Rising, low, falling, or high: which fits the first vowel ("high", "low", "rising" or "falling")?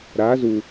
rising